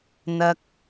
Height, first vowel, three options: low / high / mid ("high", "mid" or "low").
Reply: low